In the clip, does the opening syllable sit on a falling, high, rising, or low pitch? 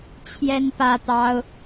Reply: high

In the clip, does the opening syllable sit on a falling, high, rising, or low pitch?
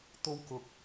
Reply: high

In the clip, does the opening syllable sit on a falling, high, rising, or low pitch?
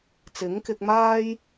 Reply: rising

